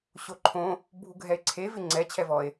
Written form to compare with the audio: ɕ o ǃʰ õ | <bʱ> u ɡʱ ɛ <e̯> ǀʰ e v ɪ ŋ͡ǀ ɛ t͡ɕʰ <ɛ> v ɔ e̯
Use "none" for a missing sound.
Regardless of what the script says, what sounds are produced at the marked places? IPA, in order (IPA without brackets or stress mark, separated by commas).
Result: bʱ, e̯, ɛ